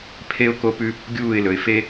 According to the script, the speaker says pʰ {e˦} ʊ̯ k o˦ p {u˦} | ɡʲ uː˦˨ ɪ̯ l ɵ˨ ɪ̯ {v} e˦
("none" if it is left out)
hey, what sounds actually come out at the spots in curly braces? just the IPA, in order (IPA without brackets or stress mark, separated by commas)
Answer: e˦, ʉ˦, f